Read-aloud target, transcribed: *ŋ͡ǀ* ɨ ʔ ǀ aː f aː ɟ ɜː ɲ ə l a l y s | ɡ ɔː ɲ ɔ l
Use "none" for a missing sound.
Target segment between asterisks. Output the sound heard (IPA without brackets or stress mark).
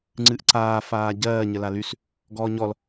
ŋ͡ǀ